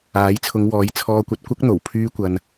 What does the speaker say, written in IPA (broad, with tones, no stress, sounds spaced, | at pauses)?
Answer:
aː˨˥ j t͡sʰ ʊ˨˧ ŋ w ɔː˨˥ j t͡sʰ ɔː˧ kʷ ɐ˧ t̚ kʷ ɐ˥ k̚ n̪ o˨˩ w pʰ yː˥ kʷ ɐ˧ n